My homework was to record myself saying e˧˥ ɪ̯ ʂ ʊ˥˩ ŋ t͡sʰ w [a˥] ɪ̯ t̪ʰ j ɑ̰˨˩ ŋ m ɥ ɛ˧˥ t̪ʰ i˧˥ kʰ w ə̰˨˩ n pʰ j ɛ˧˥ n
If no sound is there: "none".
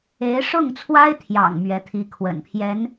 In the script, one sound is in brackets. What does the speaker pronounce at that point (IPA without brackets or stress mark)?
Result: a˥